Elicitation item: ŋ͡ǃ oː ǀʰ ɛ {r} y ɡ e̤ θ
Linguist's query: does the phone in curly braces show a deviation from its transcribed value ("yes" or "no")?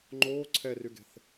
no